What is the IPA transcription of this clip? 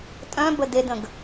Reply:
tʼœ̃bə dedə̃ɡ

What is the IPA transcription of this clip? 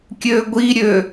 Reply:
kʲøɡʷiɾʲø

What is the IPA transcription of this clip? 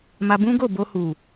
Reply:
ma˧bũ˦ɡo˦˨ bo˧hu˨

